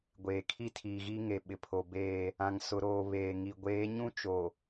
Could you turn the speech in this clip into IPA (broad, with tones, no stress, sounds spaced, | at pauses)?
ɡʷ eː˨ kʰ i˦ tʰ iː˨ ɣ iː˦ ŋ e˨ ɓ ɪ˨ pʰ o˨ b eː˦˨ | ã˨ ŋ s ʊ˨ ɾ oː˨ β eː˨ ŋ i˨ ɡʷ eː˨˦ ɲ ũ˦ t͡ʃ o˨